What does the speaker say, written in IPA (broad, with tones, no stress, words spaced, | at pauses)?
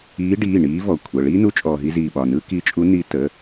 iː˧˥ɖiː˩˧˩ ɳiː˧˥ vɔ˩˧˩kʷʰə˩˧˩ ɭiː˥nu˧˥ t͡ʃʼɔː˧ɦi˥ziː˧ɓɒ˩˧˩ nɯː˥ki˧˥t͡ʃʼu˧˥ ni˧˥ tə˩˧˩